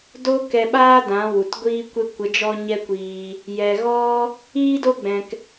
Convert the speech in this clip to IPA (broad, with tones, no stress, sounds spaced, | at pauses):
d o˦ k ɛ˧ ɓ aː˦ d ã˨˦ w u˨ t ɡʷ iː˦ kʷ e˦ kʷ ə˨˦ d͡ʒ ɔ˦ ɲ ɛ˦ kʷ iː˧ | j ɛ˨ ɣ ɔ˦ | iː˦ d o˦ ɡ͡b ɛ̃˨ k